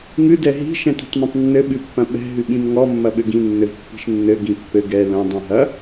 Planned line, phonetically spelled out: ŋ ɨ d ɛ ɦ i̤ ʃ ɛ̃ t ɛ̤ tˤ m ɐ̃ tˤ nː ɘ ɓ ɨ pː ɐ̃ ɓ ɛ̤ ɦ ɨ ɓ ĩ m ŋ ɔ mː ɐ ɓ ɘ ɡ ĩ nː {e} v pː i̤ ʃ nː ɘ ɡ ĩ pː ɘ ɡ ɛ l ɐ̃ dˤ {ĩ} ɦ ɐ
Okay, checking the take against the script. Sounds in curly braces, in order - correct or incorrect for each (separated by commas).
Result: incorrect, correct